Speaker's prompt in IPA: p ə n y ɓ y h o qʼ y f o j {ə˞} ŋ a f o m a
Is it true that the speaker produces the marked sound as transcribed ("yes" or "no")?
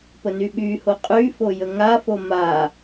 no